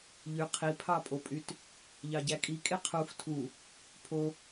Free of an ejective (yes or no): no